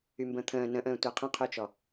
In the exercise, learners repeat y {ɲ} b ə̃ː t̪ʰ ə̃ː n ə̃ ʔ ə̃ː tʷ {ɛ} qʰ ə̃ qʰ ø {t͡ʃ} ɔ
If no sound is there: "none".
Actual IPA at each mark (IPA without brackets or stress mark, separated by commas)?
m, ɛ, t͡ʃ